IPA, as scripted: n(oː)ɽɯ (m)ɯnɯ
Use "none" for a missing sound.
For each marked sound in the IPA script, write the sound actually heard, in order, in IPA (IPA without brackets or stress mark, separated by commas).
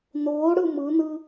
oː, m